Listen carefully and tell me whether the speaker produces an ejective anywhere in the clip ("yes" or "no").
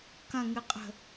yes